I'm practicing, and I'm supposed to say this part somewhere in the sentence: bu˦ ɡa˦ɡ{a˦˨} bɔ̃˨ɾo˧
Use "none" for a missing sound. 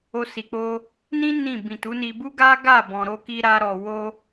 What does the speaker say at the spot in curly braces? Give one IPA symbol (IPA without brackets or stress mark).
a˦˨